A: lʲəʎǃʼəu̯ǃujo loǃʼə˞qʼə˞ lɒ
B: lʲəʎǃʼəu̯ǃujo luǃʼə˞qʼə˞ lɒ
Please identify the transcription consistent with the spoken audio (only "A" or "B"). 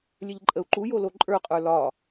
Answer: A